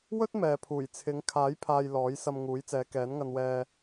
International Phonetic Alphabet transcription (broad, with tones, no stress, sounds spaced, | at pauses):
w ɵ˥ t̚ m ɛː˨ pʰ uː˨˩ j t͡sʰ ɪ˨˧ ŋ kʰ aː˨˥ j pʰ aː˨ j l ɔː˨˥ j s ɐ˧ m ŋ uː˨˥ j t͡s ɛː˨˧ k ɛː˨˥ n ŋ ɐ˧ n w ɛː˧